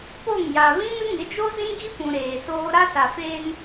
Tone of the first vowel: falling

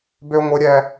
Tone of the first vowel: high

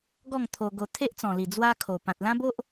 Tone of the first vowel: falling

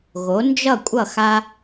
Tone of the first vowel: rising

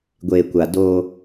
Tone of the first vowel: low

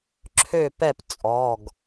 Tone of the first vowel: falling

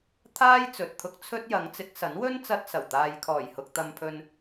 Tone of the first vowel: high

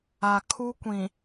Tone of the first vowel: low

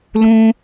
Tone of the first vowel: high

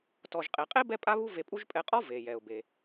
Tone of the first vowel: low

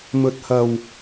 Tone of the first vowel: low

